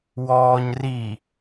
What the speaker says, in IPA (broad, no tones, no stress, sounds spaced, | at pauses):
w ɔː ɲ r i